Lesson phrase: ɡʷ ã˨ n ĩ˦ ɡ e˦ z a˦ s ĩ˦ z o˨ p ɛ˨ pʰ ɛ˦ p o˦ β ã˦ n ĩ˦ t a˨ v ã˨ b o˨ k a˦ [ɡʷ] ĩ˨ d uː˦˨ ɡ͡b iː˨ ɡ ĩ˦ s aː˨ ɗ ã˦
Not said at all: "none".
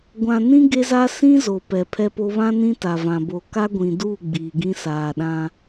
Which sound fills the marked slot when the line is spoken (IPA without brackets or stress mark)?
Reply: ɡʷ